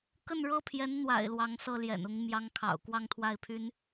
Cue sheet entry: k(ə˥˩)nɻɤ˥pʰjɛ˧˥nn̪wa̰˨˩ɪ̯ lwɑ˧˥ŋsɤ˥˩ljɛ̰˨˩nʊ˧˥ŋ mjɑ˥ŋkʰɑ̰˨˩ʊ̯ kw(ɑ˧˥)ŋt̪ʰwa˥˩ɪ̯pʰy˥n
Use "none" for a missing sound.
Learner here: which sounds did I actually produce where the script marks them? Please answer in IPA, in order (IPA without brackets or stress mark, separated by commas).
ə˥˩, ɑ˥˧